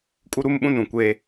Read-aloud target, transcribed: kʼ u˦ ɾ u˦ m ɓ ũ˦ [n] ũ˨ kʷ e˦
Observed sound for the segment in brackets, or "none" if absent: n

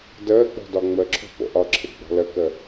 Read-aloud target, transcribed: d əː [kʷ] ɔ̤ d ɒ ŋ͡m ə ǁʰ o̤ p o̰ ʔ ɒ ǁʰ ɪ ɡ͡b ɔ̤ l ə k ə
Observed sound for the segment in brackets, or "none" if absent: k͡p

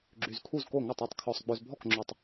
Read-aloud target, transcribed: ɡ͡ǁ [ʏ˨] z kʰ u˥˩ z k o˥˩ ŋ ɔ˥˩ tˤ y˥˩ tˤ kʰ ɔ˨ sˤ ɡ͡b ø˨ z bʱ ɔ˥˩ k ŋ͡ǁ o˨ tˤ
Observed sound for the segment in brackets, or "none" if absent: y˨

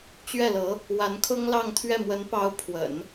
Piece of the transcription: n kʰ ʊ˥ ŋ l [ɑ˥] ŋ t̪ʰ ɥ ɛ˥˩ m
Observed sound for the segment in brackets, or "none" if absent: ɑ˥˧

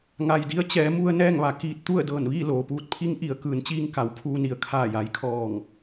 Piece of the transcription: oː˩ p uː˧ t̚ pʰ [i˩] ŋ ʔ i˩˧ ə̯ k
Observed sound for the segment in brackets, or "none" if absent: i˧˥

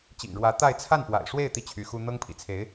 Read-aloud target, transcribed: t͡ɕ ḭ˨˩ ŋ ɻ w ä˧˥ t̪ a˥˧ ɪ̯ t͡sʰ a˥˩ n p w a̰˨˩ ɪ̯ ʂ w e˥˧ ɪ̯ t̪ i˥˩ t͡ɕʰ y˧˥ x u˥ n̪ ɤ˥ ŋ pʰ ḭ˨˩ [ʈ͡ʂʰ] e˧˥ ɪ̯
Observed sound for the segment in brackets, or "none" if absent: t͡sʰ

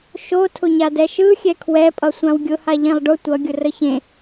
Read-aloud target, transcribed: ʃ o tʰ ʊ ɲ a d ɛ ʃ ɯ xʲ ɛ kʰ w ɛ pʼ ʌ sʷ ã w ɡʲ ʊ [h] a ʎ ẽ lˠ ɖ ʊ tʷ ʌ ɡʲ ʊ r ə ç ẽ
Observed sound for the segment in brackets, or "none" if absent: h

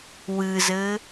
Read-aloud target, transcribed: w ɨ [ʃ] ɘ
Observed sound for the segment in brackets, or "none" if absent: z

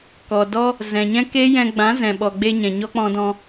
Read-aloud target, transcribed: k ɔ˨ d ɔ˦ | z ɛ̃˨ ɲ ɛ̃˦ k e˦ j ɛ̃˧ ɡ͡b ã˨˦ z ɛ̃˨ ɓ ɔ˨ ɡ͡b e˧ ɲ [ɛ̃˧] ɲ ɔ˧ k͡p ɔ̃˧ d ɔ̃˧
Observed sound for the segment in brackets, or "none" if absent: ɛ̃˨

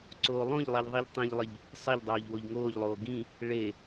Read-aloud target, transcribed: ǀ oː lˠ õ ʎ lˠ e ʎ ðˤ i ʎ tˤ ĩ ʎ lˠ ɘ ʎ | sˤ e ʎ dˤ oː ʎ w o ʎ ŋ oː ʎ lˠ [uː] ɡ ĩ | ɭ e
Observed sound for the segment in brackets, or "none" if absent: oː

